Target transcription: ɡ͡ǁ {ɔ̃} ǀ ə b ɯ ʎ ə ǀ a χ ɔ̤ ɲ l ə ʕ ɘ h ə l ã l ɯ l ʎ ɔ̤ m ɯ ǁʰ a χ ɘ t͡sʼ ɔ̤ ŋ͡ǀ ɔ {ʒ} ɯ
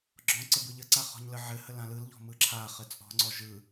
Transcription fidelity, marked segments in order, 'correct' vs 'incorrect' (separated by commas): correct, correct